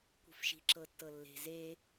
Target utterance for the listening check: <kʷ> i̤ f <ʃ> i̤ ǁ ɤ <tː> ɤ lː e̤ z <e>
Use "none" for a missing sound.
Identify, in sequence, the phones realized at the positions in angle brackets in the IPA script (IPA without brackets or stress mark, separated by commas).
kʷ, ʃ, tː, e